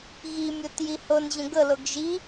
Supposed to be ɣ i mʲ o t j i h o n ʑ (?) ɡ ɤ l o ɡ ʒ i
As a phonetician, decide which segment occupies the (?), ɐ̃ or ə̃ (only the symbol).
ə̃